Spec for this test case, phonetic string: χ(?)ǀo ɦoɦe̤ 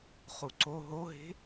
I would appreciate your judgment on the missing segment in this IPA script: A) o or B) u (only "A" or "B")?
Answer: B